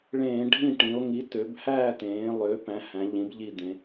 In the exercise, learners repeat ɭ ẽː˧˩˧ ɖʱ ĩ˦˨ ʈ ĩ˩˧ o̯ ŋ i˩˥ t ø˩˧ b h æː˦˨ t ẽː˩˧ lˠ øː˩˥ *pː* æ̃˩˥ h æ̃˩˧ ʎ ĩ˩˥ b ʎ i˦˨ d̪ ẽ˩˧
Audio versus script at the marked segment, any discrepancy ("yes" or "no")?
yes